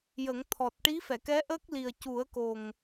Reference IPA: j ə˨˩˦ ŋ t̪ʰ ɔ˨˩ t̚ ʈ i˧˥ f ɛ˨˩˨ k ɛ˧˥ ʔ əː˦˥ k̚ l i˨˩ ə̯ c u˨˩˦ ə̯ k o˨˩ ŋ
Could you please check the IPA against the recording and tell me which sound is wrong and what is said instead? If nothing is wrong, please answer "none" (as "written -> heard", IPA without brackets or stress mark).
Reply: none